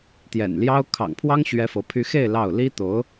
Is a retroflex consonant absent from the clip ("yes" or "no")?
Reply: yes